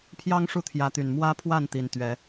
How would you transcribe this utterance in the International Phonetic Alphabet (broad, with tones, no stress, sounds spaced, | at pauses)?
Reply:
pʰ j ɑ˦ ŋ ʂ u˥˨ t̪ʰ j ä˨˦ t̪ y˨˩ n m w ä˦ pʰ w a˥˨ n t̪ i˨˩ n t̪ ɥ ɛ˨˦